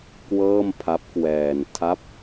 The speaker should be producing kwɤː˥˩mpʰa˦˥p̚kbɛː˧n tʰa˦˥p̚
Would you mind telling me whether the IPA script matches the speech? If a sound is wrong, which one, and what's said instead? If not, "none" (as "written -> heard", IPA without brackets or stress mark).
b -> w